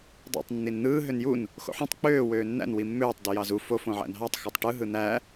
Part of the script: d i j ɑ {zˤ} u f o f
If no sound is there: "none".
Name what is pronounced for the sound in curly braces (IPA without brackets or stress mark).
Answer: z